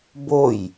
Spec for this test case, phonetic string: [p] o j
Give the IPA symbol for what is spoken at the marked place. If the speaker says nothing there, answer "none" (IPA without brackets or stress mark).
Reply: b